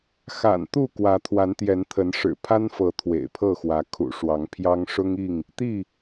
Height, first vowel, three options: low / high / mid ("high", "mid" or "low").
low